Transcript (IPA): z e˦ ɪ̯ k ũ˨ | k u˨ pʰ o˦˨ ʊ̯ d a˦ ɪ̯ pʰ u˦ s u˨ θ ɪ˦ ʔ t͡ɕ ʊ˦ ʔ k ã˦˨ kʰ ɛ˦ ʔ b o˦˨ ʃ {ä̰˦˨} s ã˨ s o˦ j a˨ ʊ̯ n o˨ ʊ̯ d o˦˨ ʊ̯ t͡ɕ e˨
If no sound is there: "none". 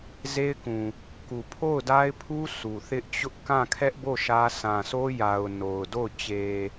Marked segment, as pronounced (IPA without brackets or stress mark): ä˦